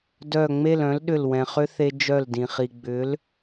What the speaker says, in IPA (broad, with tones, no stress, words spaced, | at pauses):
dœ˧˩ŋ͡me˥˨lœ̃˨˥lɗʏ˧˩l wɛ̃˩χʏ˦˥θe˧ d͡ʒœ˧˩ldĩ˩ χi˩ ɡ͡bʏ˨˥l